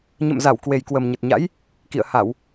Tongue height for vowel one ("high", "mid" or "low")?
mid